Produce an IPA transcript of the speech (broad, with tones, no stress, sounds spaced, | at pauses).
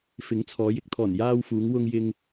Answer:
f ɪ˨˥ ŋ t͡sʰ ɔː˨˧ j ɪ˨ k̚ t̪ʰ ɔː˨˩ n j aː˧ w f uː˨˧ ŋ w ʊ˧ ŋ j ɪ˧ ŋ